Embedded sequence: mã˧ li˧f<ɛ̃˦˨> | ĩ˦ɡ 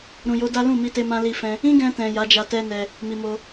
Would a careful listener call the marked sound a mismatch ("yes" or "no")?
yes